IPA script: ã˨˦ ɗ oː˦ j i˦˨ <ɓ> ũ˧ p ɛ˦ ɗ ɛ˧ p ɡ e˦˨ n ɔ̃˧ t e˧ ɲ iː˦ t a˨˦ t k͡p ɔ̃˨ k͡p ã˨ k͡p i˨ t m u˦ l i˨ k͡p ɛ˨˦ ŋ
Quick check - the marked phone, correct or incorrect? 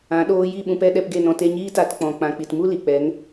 correct